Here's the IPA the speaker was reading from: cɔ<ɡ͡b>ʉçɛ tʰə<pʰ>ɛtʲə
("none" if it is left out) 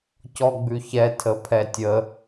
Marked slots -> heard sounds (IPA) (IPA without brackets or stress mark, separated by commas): ɡ͡b, pʰ